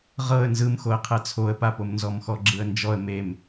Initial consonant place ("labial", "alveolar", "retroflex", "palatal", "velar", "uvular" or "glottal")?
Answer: uvular